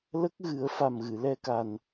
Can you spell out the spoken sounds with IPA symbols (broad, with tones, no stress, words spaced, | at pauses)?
lə˦˥k̚ɣɨ˨˩˦ə̯ fa˨˩mɣɨ˨˩˨lɛ˧ka˨˩n